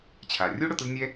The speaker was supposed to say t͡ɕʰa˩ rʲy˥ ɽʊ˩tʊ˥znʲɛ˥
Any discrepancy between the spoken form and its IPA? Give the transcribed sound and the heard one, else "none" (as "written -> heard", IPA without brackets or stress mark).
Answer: y˥ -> u˥